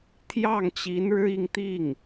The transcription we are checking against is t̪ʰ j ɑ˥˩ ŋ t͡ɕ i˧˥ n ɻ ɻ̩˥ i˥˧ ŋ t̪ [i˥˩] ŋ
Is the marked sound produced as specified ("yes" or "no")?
yes